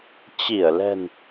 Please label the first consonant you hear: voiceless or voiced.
voiceless